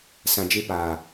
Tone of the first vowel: low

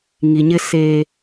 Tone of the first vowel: low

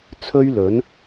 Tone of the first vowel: high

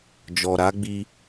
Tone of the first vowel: low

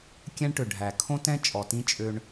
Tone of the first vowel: high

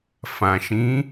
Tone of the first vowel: low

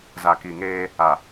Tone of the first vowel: low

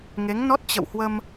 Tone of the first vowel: rising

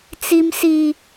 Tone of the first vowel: high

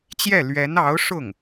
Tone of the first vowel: falling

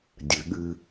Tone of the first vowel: low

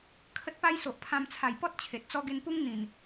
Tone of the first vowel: high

